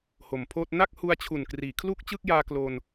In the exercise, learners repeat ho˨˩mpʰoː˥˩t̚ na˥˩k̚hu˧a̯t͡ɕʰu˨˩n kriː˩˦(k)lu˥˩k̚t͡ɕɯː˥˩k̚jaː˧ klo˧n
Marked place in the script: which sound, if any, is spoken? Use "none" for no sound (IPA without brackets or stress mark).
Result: kʰ